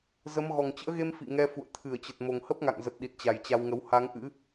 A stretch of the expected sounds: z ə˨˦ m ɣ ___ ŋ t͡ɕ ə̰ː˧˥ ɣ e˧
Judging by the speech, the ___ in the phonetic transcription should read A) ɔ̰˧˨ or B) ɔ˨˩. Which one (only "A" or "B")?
B